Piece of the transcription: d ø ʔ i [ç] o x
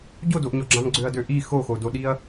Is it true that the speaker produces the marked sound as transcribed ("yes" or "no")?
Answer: no